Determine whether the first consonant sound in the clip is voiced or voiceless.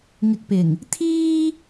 voiced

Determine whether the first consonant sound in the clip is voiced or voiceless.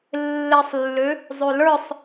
voiced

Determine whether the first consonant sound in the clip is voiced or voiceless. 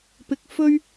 voiceless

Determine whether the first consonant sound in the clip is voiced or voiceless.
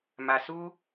voiced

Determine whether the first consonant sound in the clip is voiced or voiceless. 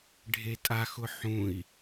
voiced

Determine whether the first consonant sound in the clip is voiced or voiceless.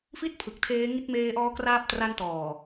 voiceless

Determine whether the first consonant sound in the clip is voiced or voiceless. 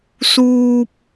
voiceless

